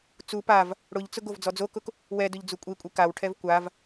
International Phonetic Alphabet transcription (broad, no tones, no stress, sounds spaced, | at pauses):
t͡s u p a v | ɽ ʊ ʎ t͡s ʊ ɡ o v d͡z ɔ d͡z o k ʊ k | w ɛ d ʊ ʎ d͡z u kʷʼ i kʷʼ i k a w ʈʰ ɛ v kʷ a v